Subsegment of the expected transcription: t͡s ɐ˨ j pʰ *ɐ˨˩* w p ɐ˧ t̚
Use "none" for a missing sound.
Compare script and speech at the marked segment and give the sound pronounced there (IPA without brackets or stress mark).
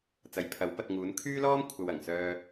ɐ˨˥